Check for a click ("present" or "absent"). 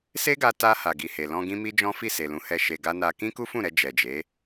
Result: absent